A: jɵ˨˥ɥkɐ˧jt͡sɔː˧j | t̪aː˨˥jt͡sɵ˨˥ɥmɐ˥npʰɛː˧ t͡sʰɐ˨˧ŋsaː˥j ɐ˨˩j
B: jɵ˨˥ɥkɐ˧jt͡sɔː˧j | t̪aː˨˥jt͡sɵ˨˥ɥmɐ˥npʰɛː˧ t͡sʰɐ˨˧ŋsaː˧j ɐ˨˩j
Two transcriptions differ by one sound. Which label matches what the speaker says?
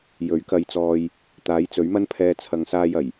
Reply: B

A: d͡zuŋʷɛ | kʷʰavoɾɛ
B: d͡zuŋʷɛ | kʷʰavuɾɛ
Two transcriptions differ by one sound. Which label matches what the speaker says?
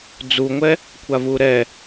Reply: B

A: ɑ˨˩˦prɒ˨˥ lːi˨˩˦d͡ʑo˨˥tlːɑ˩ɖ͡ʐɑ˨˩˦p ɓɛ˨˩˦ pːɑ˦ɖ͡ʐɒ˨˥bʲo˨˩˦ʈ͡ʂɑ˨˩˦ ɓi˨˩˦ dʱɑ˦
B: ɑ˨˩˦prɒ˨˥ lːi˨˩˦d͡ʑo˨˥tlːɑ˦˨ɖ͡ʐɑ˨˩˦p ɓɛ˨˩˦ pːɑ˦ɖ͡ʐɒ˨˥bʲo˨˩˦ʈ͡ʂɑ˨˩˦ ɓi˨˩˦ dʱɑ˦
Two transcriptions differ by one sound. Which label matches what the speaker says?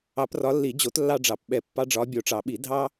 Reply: B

